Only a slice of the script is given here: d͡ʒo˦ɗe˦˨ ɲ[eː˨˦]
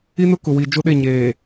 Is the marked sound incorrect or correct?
incorrect